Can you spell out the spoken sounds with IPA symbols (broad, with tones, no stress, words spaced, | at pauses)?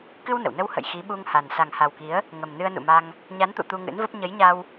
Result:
kɨ˧w nə̰˧˨w nə˧whə̰˧˨j xi˨˦ɓu˧ŋha˨˩n sa˨˩ŋha˨˩wki˨˦ə̯ | ŋə˨˩mnɨ˧ə̯nṵ˧˨ma˧ŋ | ɲa˨˦nt̪ṵ˧˨ t̪u˧ŋɨ̰˧˥nvə˦˥p̚ ɲə˨˦jɲa˧w